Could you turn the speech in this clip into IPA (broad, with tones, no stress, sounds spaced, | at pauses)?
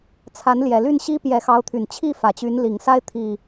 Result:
t͡sʰ a˨˦ n l j ɛ˨˩ l y˥˨ n ɕ i˦ p j ɛ˨˦ x ɑ˨˦ ʊ̯ t̪ʰ y˨˩ n t͡ɕʰ i˥˨ f ä˨˩ t͡ɕ y˨˦ n l i˨˩ ŋ s a˦ ɪ̯ t̪ʰ i˨˩